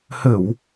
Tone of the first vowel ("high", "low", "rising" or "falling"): low